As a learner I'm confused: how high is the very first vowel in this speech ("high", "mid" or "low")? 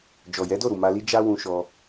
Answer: mid